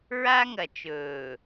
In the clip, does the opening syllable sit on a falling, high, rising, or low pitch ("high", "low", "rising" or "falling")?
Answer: high